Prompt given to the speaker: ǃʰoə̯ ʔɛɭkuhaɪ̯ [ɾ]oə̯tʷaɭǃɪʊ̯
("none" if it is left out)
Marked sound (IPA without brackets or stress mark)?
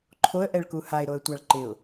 ɾ